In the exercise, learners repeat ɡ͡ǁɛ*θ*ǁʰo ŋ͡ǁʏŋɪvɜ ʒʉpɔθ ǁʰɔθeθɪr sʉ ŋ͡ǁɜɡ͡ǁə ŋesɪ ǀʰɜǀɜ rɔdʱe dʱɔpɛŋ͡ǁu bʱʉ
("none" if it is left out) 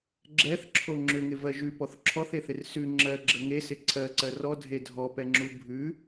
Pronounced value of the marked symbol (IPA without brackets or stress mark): θ